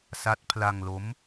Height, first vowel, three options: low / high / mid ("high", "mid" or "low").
low